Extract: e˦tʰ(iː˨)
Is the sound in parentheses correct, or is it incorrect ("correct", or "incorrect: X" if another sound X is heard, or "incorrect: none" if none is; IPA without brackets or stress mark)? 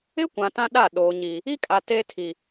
incorrect: i˨